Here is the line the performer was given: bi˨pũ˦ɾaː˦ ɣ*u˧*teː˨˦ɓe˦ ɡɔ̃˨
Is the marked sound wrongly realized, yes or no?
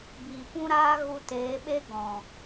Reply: no